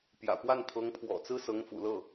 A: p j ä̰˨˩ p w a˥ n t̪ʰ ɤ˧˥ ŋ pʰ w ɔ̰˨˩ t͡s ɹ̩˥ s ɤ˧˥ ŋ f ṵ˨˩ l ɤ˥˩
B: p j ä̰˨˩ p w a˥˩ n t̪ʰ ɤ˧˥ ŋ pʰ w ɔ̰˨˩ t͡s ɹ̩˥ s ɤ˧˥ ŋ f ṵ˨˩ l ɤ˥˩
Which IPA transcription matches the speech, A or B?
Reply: B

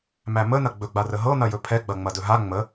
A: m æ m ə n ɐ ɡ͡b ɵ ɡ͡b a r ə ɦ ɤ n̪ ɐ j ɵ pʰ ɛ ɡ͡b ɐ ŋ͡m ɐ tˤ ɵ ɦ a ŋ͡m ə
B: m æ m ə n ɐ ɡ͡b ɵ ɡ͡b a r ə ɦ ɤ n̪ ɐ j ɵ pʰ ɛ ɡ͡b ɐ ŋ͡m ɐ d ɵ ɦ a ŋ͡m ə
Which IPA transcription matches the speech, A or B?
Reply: B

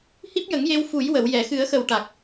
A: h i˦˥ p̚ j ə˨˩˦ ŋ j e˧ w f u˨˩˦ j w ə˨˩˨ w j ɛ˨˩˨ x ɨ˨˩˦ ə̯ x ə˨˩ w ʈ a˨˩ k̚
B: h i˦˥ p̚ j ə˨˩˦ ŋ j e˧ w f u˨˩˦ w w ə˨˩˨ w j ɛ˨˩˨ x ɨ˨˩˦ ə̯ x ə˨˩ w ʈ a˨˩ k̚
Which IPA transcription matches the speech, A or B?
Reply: A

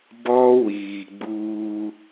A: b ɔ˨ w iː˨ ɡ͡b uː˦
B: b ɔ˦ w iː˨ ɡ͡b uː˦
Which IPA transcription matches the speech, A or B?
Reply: B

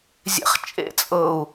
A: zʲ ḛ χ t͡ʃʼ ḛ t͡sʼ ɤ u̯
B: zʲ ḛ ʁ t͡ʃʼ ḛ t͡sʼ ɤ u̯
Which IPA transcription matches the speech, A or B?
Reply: A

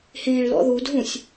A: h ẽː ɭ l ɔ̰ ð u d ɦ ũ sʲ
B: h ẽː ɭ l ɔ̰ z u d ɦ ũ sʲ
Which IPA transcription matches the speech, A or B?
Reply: A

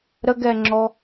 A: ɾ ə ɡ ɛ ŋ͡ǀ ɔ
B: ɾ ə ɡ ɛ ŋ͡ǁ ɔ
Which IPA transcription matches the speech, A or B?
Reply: B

